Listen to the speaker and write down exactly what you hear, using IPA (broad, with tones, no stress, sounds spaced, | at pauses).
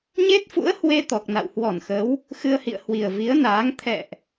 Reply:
ɲ e˦˥ t̚ f ṵ˧˥ ə̯ h w e˧ t̪ ɔ˨˩ k̚ n a̰˧˨ w h w ɔ˧˩ n x ə˨˦ w | x ɨ˧ ə̯ h ḭ˧˨ ə̯ h w i˨˩ ə̯ v i˨˦ ə̯ n aː˨˦ ŋ t̪ʰ ɛ̰˧˨ ʔ